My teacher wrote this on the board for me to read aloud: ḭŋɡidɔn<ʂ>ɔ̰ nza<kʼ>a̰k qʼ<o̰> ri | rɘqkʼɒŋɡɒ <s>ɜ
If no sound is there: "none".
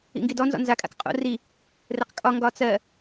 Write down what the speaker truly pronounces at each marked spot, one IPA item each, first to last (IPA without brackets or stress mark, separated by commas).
z, kʼ, o̰, t͡s